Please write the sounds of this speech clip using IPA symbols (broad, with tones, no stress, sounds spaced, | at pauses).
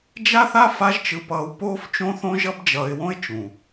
d͡ʒ a˦ θ a˦ f a˦ ʒ t͡ʃ ɯ˧ p ʌː˧ w p oː˦ f t͡ʃ õ˦ θ õ˦ ʒ ʌ˦ b d͡ʒ ʌː˧ ɪ̯ w õ˦ ɪ̯ t͡ʃ ũ˨